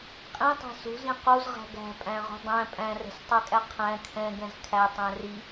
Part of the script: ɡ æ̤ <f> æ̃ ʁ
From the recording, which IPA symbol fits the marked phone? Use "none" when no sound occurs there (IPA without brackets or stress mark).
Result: pʼ